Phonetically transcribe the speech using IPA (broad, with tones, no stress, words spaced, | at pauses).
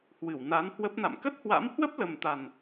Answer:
hwɨ˧˩wna˨˦nhwə˦˥p̚na̰˧˨m kə˦˥t̚hwa̰˧˥m hwə˦˥p̚ lə˨˩mt̪a˨˩n